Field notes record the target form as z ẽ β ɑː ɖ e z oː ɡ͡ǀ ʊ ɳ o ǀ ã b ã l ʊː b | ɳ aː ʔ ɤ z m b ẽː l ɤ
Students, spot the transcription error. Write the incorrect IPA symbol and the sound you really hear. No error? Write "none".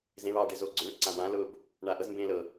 none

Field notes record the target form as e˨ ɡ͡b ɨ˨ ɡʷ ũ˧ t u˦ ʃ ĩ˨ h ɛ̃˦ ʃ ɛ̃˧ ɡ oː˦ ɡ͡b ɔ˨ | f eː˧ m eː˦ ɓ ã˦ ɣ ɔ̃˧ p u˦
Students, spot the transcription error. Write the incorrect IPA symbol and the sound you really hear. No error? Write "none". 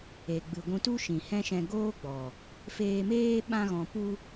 none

